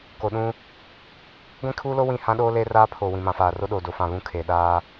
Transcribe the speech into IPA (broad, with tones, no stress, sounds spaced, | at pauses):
k o˨ ɗ ũ˦ | ɡʷ ĩ˦ kʰ uː˦ l o˦ w ĩ˦˨ h ã˦ ɗ oː˦ l eː˦ r aː˦ pʰ oː˨ w ĩ˨ m ã˨ f aː˨ r o˦ ɗ oː˨ d o˨ f ã˦˨ β ũ˦ kʰ eː˨ ɗ aː˦